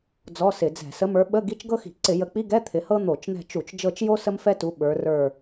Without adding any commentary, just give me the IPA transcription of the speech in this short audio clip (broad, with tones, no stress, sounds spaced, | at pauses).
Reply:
d͡z ɔ˧˥˧ s ɪ˧˩˧ d͡z ɛ̤˧˩˧ s ə˨˦ m ə˞˨˦ ɓ ə˧˥˧ ɡ i˧˥˧ t͡ʃ ɡ ɤ˥ x i̤˧˩˧ ǀ ɪ˧˩˧ j ə˨˦ k͡p i˧˥˧ ɡ ɛ˧˥˧ t̪ʰ ɪ˨˦ h ɤ˥ n̪ o˧˩˧ t͡ʃ n̪ ɛ̤˦˨ t͡ʃ u˧˩˧ t͡ʃ d͡ʒ ɤ˦˨ t͡ʃ j o˥ s ə˥ m f ɛ˥ t u˨˦ ɓ ə˞˨˦ r ə˞˦˨